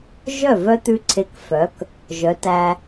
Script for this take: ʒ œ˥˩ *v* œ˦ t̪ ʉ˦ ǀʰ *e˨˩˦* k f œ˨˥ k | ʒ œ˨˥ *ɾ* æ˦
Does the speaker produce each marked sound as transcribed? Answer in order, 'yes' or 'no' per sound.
yes, no, no

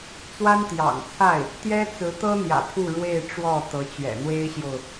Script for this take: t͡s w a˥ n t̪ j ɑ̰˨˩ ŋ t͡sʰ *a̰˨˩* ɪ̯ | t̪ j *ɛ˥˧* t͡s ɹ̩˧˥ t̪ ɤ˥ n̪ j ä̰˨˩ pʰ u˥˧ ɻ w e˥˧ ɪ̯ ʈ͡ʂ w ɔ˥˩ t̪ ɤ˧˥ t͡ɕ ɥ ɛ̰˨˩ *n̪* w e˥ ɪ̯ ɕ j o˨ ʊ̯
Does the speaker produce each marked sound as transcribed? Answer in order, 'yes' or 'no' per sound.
no, no, yes

